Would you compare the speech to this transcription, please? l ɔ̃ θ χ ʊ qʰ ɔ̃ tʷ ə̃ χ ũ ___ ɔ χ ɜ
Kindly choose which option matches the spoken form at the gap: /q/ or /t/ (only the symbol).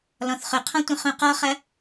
q